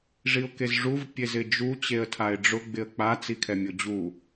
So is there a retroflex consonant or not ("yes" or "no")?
yes